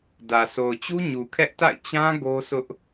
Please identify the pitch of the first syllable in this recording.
low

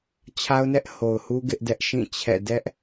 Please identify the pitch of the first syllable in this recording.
high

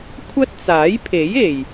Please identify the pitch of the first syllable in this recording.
high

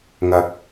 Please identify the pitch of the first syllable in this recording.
low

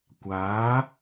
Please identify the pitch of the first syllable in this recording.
rising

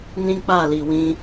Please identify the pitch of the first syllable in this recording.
high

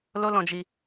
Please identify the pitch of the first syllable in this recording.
high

